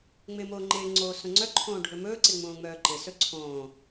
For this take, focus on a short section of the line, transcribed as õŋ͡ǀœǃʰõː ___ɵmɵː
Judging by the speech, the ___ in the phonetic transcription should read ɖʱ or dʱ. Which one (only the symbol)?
ɖʱ